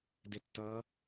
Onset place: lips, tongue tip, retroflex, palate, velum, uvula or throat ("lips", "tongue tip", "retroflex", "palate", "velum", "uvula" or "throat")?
tongue tip